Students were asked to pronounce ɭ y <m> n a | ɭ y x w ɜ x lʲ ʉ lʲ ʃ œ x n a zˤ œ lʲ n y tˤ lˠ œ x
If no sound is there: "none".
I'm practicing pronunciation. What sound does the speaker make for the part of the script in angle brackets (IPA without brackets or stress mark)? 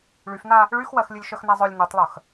f